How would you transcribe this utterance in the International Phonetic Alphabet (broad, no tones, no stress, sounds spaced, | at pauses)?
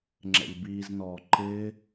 ŋ͡ǁ ɛ̰ ʎ b iː z n ɔː ǃ ɪː